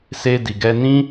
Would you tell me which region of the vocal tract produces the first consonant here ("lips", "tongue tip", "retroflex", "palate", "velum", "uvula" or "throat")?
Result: tongue tip